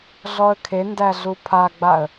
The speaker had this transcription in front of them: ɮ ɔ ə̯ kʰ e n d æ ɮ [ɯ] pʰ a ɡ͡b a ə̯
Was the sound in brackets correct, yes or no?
no